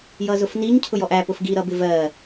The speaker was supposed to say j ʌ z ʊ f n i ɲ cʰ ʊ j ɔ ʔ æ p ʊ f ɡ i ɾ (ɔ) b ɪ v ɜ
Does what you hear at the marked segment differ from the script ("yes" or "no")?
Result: yes